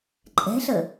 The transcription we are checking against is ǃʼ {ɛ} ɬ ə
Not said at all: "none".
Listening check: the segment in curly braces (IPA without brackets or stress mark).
ɛ̤